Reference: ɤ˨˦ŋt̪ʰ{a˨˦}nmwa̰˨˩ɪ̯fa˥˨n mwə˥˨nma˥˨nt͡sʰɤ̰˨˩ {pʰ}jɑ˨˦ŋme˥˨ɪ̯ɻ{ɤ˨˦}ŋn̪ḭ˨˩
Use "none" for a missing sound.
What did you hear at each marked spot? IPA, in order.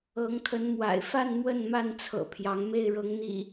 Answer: ə˨˦, pʰ, ɤ˨˦

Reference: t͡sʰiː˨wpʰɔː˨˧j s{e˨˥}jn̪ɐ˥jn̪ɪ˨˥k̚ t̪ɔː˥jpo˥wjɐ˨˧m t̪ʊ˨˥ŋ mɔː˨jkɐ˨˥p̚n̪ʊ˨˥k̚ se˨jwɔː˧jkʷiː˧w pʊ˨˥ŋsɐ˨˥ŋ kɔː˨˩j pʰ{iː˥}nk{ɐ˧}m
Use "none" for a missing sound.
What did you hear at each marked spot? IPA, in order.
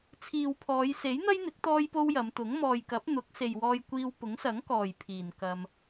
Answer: e˨˥, iː˨˩, ɐ˧

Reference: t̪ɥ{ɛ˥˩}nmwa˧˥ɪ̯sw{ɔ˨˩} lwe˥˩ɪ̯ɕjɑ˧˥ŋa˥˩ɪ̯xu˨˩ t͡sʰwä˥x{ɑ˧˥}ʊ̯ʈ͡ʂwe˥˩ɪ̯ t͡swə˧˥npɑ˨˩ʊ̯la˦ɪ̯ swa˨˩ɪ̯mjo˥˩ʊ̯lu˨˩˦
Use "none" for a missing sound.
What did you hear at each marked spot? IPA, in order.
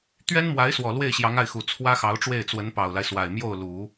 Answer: ɛ˥, ɔ˨˩, ɑ˧˥

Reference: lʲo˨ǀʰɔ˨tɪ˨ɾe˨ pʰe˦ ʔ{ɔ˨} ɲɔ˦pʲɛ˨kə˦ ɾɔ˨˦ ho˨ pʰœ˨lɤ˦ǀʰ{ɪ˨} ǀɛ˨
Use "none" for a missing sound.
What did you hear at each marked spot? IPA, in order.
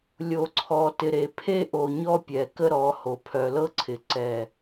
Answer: o˨, ɪ˨

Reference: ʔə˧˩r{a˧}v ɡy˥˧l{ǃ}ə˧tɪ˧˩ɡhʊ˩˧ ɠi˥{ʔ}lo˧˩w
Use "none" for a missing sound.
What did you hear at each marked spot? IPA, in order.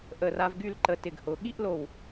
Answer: a˧, ǃ, ʔ

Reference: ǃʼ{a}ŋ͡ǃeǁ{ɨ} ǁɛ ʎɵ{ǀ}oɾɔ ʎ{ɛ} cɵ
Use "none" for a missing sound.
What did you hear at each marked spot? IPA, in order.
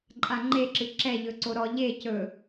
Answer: a, ɨ, ǀ, e

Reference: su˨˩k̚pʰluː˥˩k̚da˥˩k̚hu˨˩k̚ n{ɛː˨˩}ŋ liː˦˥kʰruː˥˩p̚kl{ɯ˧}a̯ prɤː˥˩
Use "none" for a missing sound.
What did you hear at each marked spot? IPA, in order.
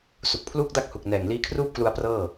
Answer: ɛː˨˩, u˧

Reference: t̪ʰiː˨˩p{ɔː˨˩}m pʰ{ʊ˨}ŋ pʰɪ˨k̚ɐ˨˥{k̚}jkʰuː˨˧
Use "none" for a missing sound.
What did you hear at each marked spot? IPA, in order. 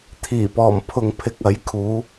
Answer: ɔː˨˩, ʊ˨, none

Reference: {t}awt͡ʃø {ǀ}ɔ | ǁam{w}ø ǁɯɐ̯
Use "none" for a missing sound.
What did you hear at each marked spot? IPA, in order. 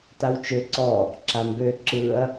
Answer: t, ǀ, b

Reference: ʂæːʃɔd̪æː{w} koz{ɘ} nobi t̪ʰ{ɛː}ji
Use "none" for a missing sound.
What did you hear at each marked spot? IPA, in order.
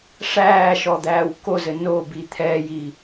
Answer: w, ɘ, ɛː

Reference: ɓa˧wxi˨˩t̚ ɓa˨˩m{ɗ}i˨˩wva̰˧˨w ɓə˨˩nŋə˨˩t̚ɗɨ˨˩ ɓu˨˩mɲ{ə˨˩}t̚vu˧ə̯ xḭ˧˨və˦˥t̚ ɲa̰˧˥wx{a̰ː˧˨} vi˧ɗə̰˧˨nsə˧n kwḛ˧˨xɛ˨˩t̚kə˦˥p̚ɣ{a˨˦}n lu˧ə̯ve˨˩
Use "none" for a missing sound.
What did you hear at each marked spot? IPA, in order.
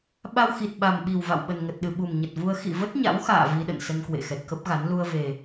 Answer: ɓ, ə˨˩, a̰ː˧˨, a˨˦

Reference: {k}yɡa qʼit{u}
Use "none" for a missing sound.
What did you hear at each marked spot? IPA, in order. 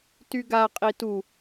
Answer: t, u

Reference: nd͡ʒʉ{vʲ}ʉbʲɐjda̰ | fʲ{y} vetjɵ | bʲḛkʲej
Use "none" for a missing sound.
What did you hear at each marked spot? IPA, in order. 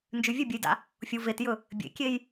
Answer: vʲ, u

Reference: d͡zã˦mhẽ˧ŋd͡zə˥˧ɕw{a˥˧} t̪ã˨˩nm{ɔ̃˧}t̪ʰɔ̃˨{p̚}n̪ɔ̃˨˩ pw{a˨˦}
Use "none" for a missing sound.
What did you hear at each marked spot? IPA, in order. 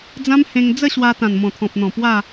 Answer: a˧, ɔ̃˨˩, p̚, a˥˧

